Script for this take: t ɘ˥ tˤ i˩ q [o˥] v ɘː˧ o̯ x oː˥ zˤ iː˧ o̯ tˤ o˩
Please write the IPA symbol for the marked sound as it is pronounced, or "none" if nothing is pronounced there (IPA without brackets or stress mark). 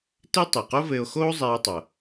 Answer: o˥